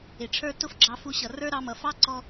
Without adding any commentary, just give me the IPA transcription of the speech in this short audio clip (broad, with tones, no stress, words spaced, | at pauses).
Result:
ɪ˩ʈ͡ʂʰə˞˥ tʊ˥fɡ͡ǁɑ˧fu˧ɕʌ˩ rə˞˥ɾɑ˧mʌ˩ fɑ˥ǀɔ˧